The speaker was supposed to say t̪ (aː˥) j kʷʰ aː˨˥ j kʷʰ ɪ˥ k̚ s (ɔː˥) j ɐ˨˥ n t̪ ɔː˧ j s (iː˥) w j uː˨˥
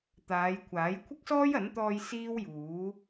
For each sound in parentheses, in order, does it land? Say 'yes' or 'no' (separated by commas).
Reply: no, yes, yes